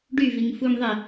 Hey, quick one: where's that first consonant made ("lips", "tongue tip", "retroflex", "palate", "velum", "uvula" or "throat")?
retroflex